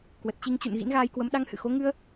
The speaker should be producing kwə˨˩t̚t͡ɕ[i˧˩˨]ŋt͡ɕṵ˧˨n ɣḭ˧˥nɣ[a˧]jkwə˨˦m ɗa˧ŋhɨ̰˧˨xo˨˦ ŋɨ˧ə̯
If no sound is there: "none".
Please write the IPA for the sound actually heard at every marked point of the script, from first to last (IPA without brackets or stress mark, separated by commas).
i˧, aː˧